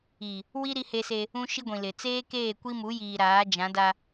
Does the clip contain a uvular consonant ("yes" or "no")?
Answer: no